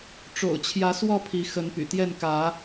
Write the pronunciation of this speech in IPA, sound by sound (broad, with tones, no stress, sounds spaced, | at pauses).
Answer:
ʈ͡ʂ o̰˨˩ ʊ̯ t͡ɕʰ j ä˨˦ s w ɔ˥˨ pʰ i˨˦ x ə˨˦ n p y̰˨˩ t̪ j ɛ˥˨ n k ä˨˦